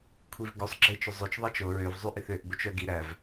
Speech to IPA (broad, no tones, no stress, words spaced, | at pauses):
kʷʰivɡosˤɡ͡ǁet͡ʃɵ zˤøt͡ʃðˤɑt͡ʃ o ɹøvzˤy ʔiθøʔbot͡ʃ œɡi ɾæv